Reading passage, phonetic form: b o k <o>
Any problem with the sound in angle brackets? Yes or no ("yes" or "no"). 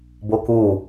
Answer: yes